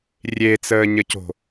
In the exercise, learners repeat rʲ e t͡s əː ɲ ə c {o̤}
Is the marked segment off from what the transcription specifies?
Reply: no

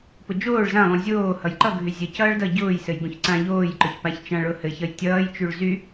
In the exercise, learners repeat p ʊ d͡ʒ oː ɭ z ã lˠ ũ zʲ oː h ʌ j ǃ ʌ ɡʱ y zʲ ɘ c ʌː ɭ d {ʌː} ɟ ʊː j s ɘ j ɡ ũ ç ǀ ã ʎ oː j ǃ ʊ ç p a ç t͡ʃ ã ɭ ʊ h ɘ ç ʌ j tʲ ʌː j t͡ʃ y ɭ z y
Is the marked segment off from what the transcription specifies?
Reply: yes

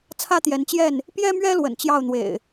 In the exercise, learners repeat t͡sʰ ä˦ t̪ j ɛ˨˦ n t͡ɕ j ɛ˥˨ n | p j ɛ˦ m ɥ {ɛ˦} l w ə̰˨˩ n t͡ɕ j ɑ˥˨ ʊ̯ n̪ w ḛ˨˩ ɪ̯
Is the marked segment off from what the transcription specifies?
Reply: no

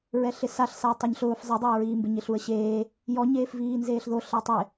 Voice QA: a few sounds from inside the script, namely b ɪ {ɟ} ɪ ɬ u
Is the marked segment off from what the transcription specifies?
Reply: yes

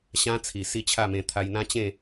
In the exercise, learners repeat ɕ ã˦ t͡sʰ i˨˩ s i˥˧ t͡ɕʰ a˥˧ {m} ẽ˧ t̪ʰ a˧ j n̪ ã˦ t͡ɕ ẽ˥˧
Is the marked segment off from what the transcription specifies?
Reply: no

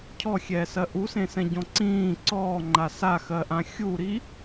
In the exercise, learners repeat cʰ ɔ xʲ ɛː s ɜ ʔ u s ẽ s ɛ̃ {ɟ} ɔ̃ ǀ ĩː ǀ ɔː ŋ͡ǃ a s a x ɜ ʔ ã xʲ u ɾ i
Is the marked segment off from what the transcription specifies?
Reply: no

